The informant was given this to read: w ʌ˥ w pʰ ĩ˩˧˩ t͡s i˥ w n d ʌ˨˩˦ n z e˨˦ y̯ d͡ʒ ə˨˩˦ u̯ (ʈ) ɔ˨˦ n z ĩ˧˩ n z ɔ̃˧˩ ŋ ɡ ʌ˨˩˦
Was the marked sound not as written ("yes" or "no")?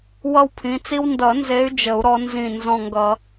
yes